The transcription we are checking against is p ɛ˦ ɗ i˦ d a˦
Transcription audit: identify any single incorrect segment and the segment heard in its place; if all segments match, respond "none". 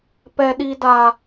none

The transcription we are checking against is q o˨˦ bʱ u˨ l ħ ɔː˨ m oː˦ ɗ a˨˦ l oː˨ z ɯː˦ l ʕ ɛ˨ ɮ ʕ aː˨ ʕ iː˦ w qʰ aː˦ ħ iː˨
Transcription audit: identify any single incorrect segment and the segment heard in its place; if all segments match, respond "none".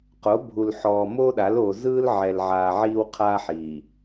ɮ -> l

